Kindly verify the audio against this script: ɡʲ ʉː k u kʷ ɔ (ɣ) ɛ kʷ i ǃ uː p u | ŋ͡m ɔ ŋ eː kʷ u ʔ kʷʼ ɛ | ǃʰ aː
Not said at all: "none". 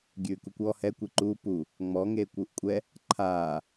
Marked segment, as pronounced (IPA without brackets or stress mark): h